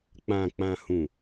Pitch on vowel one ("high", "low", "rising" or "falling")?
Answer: low